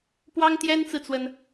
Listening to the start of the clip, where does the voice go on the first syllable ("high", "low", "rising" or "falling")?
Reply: high